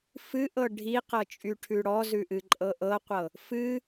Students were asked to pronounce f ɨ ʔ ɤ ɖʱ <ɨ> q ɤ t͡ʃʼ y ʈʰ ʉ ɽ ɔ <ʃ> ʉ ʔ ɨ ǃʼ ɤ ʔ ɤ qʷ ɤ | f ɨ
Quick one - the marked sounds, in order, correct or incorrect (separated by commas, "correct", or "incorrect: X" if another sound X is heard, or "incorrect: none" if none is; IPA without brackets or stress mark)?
incorrect: i, incorrect: z